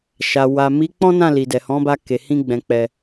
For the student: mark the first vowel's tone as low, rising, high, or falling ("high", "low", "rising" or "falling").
low